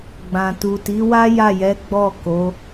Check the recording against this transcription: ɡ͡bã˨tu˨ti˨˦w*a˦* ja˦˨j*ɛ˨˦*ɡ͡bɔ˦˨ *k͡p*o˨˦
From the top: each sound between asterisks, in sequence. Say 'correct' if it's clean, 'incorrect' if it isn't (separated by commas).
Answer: correct, correct, incorrect